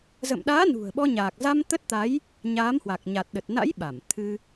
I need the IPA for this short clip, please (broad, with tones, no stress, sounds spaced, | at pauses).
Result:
z ə̰˧˨ m ɗ aː˨˦ n ṳ˨˩ ə̯ ɓ ɔ˧ ɲ aː˨˩ k̚ z a˧ m t̪ ə˦˥ t̚ t̪ a˨˦ j | ɲ aː˨˦ m h w a˨˩ k̚ ɲ a˨˩ t̚ ɗ ə˨˩ t̚ n a̰˧˥ j ɓ a˧˩ m t̪ʰ ɨ˧